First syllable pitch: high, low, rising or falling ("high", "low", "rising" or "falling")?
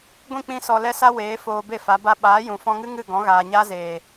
falling